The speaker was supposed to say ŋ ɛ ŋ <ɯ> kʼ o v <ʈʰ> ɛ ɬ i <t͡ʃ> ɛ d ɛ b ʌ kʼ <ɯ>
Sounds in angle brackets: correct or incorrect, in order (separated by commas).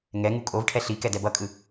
incorrect, correct, incorrect, correct